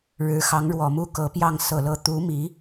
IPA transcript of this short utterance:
ɻɻ̩˧˥xɑ˧˥ŋɻwɔ˨˩mu˥ kɤ˧˥pjɑ˥˩ŋ sɤ˨˩lɤ˧˥ t̪u˧˥ mi˧˥

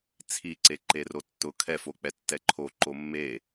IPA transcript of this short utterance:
t͡sʰiǀe ǃerotːʊ kʰɛfok͡pɛ tːɛǃʰo ǃomːe

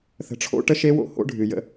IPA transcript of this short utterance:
θə̤˨ʈ͡ʂʰo̰˦ ʈə˦ʃe˦wo̰˦ ho̰˦ɖʱɨ˨ jə̰˦

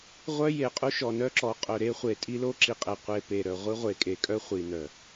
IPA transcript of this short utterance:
ʁʷœ˦je˨qʼu˦ ʃɔ˨nœ˦ǁɔ˨˦ qʼœ˨ɾe˦χʷe˨ tʼi˦lo˦ǁi˨qʼe˨ qʷe˨pe˨ ɾœ˨ ʁʷi˦ʁʷe˨kʼe˨kʼœ˦ χʷi˨nœ˨

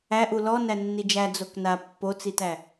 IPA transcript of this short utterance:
æʔu lɔ nænːid͡ʒæ d͡zokna pːot͡sitæ

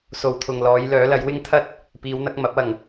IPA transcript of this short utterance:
so˨wt̪ʰʊ˨ŋlɔː˨˧j lœː˨˥lɐ˨˥j wɪ˥ŋt̪ʰɐ˥t̚ | piː˨˧wn̪ɐ˨˥k̚ mɐ˨˥p̚ɐ˨˩ŋ

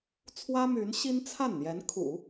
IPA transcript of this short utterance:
t͡sʰwä˥my˧˥nɕi˥n t͡sʰa˥˩nn̪jɛ˧˥n kʰṵ˨˩˦

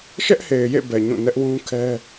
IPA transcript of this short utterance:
ʃɛ˦ʔhe˨ɪ̯jḛ˦˨bɛ˨ ɲũ˦˨nɛ˦ʔwũ˦kʰɛ˦

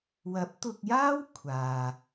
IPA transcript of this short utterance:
wɐ˨˥p̚t̪ʊ˧k̚jaː˥w kʷʰaː˨

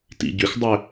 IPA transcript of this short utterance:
tḭɟʏxdˤʏ

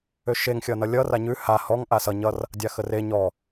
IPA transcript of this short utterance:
øʃeŋ xʲʌnʌlʲʌ raɲʉ ha hɔŋ ʔasʌ ɲʌr | dʲaxəre ɲɔ

